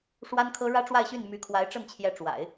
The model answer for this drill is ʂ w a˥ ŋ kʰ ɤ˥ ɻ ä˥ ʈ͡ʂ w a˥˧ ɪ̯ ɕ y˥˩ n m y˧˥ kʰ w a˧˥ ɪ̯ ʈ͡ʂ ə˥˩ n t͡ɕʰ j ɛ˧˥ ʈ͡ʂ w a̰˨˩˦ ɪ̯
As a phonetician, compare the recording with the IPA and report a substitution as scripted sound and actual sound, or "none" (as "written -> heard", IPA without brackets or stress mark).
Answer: ŋ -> n